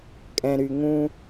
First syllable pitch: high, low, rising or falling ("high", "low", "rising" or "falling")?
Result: low